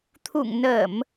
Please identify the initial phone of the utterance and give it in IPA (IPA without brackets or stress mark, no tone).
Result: t̪ʰ